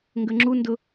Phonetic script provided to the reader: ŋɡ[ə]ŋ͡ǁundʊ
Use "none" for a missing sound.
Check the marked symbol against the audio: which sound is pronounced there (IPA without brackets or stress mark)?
ə